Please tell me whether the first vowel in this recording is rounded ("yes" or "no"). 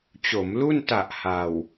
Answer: yes